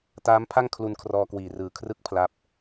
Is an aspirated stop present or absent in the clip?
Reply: present